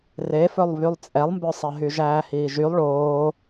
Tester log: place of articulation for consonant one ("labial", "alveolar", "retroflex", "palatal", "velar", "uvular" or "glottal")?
alveolar